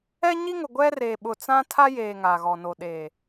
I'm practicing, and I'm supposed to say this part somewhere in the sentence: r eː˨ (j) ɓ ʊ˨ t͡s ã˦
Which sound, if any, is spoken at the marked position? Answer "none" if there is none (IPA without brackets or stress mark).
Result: none